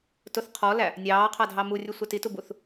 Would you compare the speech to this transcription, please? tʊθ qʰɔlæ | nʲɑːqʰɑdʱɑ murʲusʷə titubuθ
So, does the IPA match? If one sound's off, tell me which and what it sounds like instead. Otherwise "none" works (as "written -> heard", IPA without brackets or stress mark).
none